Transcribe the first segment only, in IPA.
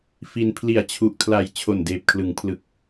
f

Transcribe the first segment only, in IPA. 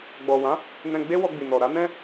ɡ͡b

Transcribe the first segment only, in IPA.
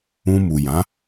ũ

